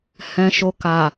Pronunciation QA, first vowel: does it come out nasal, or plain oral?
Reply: nasal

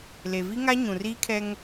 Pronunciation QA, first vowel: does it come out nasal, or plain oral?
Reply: oral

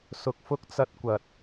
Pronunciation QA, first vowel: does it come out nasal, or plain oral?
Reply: oral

